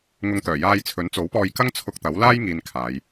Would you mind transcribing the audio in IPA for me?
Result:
ŋ ʊ˧ ŋ t̪ œː˨˩ j aː˧ j t͡sʰ ɵ˨˥ n t͡s o˨˥ w p ɔː˧ j k ɐ˥ ŋ t͡sʰ ʊ˧ k̚ t̪ ɐ˨˥ w l aː˥ j ŋ iː˧ n kʰ aː˨˧ j

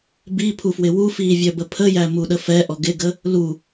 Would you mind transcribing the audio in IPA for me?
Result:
b i pʰ u f w ɪ w u f iː vʲ œ b ə pʰ ə j æ m u ɗ ə f ɛ ʔ ɔ ɡ ɪ ɡ ə | l u

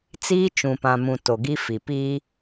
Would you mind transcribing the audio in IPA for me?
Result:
t͡s iː˦ t͡ʃ ũ˨ p ã˨ m ũ˨ t o˨ ɡ i˦ f i˨ p iː˦

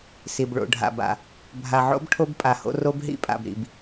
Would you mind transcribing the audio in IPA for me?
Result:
s i˨ b ɭ o̰˨ ɖʱ a̰˨ b a̰˨ | bʱ a˨ ʕ o̰˦ b ʈʰ o˦ b pʼ a˨ h o̰˦ r o˦ b ɦ ḭ˦ pʼ a̰˨ b ɾ ḭ˨ b

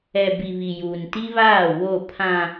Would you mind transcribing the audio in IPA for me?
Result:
ɛ˨ b i˨ β i˨ j uː˨ n t i˦ β aː˦˨ w o˦˨ pʰ ã˨

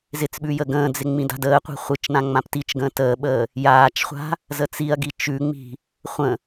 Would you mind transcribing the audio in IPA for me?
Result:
z ɪ t͡s ɓ ʉ j ə ɡ ə̃ː d͡z ɪ ŋ͡m ĩ d a̤ d əː qʷ i̤ χʷ ɨ t͡ʃ n ã ŋ͡m ã p t i t͡ʃ ɡ ə̃ː t əː ɓ əː | j aː t͡ʃ χʷ a̤ | z ə t͡s i ɐ̯ ɡ i t͡ʃ ʉ ŋ͡m i̤ | χʷ ə̃

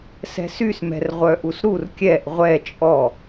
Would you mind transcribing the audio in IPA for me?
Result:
s ɛ̤ s y s m ɛ̤ r ʁʷ œ ʔ u s ɾ u r kʲ ɛ ʔ ʁʷ ɛ t͡ʃʼ ɔ

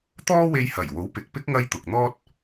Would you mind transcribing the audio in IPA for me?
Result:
t̪ ɔː˥ w e˧ j h ɐ˨˩ j w o˨˥ w p ɪ˨ k̚ p ɪ˥ k̚ ŋ ɐ˥ j t̪ ʊ˨ k̚ n̪ ɔː˥ t̚

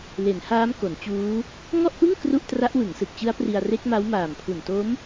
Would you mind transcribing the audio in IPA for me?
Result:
l e˩˦ n h aː˦˥ m k o˩˦ n t͡ɕ uː˦˥ | ŋ ɔ˥˩ ʔ p ɯ˥˩ ŋ k r u˥˩ ʔ t r a˦˥ ʔ w ɯ˩˦ ŋ s ɯ˨˩ k̚ t͡ɕ ɯ˦˥ a̯ p r i˧ a̯ r e˦˥ k̚ m a˦˥ w m aː˨˩ m pʰ u˨˩ n t o˦˥ m

